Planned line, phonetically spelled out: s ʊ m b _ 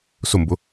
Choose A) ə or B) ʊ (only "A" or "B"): B